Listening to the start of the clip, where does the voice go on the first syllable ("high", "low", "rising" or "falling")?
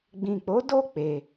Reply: low